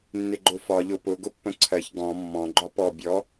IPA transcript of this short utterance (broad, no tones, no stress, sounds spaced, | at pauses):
nː ɪ ɡ͡ǃ ʊ f ɒ ʎ ʊ p ʊ ɡ ʊ pː ə̃ ǀʰ ɜ ç ɡ ɔ̃ mː ɔ̃ ɡ͡ǃ ɒ p ɔ bʲ ɔ